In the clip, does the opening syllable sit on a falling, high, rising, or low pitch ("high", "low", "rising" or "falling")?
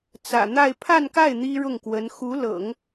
low